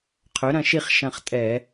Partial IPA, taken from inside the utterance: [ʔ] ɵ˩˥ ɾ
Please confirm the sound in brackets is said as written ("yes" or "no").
no